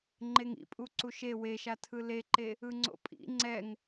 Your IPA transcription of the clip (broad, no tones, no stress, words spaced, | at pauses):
ŋ͡ǃeŋḭpʼu ǀuʃe weʃa tʰɯleǃe | ɯŋ͡ǀo̰pʼḭ ŋ͡ǀɛŋ